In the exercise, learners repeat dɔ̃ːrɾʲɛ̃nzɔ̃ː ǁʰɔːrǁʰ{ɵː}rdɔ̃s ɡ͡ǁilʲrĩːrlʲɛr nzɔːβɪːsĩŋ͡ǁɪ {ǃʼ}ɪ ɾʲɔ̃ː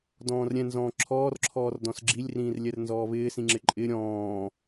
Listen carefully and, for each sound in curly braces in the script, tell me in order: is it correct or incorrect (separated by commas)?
incorrect, correct